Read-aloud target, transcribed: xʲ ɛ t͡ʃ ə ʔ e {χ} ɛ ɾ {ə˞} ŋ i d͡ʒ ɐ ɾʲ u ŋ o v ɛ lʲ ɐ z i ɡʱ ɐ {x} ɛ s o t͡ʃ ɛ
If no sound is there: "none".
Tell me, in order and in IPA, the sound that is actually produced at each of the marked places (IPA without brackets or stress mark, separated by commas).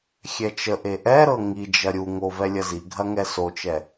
ʔ, ɤ, ŋ